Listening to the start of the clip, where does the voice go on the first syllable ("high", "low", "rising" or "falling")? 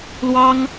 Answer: high